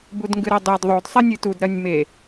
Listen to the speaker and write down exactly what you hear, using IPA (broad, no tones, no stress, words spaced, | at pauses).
budŋɡɨɾodˤad ðˤod sˤɐnʲɨtud ɾɐnʲme